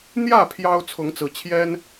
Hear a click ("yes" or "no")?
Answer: no